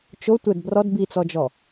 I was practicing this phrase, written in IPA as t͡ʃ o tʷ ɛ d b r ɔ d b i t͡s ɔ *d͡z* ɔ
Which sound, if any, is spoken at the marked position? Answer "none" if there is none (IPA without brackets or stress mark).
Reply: d͡ʒ